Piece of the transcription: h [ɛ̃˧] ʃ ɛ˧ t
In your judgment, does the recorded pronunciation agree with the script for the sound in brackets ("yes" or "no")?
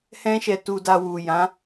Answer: no